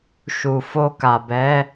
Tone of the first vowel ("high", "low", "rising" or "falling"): low